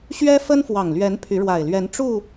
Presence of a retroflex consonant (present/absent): present